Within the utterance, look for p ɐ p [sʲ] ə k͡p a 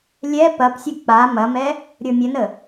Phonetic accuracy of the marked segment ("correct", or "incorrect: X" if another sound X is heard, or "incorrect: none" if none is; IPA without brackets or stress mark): correct